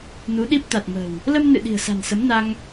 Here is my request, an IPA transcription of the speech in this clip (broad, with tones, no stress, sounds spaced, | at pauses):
n u˨˦ ɗ i˦˥ p̚ t̪ a˨˩ t̚ m ə̤˨˩ w | l ə˧ m n ɨ̰˧˨ ɗ i̤˨˩ ə̯ s a̤˨˩ n s ə˨˦ m n a˧ ŋ